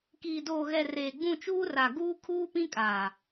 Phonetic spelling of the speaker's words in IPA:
k iː˨ d oː˨ ɣ ɛ˨ r eː˨ ɡ͡b ũ˦˨ t͡ʃ uː˦ r a˨ ɡ uː˦ kʰ uː˦ p ĩ˦ kʼ aː˨

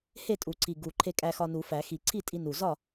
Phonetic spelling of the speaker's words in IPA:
h e˥˨ tʼ u˨˩˦ ǀʰ i˨˩ ɡ u˨˩ ǃʰ e˧ kʼ æ˧ x ɒ˧ n u˨˩˦ f æ˨˩˦ x i˨˩˦ ǀʰ i˥˨ tʼ i˧ n u˨˩ z ɒ˥˨

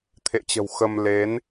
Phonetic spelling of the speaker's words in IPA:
t̪ʰ ḛ˧˨ t͡ɕ ə̤˨˩ w x ə˧ m l e˨˦ n

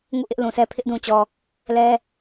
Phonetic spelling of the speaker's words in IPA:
ŋ ṵ˦˨ ʔ ɪ˦ ʔ l ũ˨ s ɛ˦ pʰ ɪ˦ ʔ d ũ˨ t͡ɕ ɔ˨ | l ɛ˦

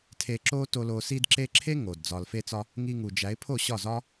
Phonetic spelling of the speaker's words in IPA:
tʰ eː˨ ǁ oː˧ t o˧ l oː˧ s i˧ d ǁ e˧ ǁʰ e˦ ŋ o˨ d d͡z ɒː˨ l f e˧ t͡s ɒ˧ | ŋ i˧ ŋ u˨ d͡ʒ æ˨˦ ɪ̯ pʰ o˦˨ ɕ ɒ˦˨ z ɒ˦

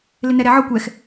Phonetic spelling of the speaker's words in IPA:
l ɪ n ɛ ɾ ɛ ʕ ɔ kʷ ɛ x

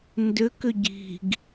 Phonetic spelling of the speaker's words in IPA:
n d ʏ k ʏ ɟ i̤ ɡ

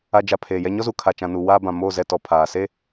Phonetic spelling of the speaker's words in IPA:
a˨ d͡ʒ a˨ pʰ eː˨ j ɛ˦ ɲ ɔ˦ z u˨ kʰ a˨ t͡ʃ ã˨ n u˨ w aː˦ b ã˨ m oː˦˨ z ɛ˦˨ t ɔ˨ pʰ aː˨ s e˦

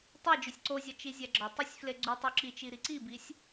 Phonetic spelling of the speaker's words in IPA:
tˤ e d͡ʒ o sʲ ǀ o zʲ ɒ t͡ʃ i zʲ æ ɡ͡ǁ ɒ tˤ æ sʲ f l e ɡ͡ǀ u tˤ u ǁ i t͡ʃ i ɾ i ǀ i b i sʲ

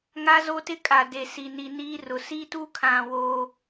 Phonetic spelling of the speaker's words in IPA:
ŋ a˦ z o˦ t ɪ˦ kʼ a˨ d e˨ s i˨ n i˨ n iː˦ r ʊ˨ s i˦ t u˦ kʰ ã˨ w o˦

